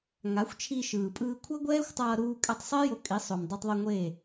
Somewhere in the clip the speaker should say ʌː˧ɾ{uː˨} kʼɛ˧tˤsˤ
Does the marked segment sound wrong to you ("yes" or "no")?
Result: yes